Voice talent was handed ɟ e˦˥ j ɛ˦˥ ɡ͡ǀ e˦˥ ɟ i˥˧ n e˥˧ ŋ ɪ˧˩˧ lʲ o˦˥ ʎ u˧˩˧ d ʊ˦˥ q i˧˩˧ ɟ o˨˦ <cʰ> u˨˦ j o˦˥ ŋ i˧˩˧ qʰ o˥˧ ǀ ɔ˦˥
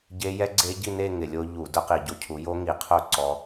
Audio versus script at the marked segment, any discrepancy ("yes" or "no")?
no